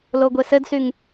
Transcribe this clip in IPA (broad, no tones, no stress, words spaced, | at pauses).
loɡʷesɘdsyŋ